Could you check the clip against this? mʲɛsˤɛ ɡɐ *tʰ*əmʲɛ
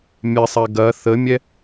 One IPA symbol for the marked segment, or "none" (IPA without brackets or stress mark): θ